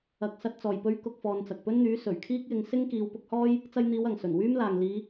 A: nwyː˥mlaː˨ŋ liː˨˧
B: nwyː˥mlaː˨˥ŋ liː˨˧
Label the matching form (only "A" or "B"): A